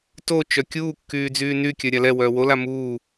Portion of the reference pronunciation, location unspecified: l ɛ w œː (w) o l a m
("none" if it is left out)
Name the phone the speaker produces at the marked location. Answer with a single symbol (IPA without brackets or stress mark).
w